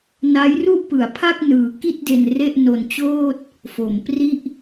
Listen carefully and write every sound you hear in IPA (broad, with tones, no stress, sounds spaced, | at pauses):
n a˦˥ j r u˥˩ ʔ p ɯ˩˦ a̯ pʰ a˥˩ k̚ n ɯː˨˩ k i˥˩ t̚ d e˧ n r e˥˩ ʔ n o˧ n t͡ɕ oː˥˩ t̚ | f o˩˦ m p r i˥˩ ʔ